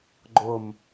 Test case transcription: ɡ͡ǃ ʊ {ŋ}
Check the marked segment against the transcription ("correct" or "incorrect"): incorrect